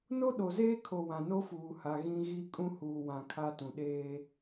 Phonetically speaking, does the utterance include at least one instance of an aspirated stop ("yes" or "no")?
yes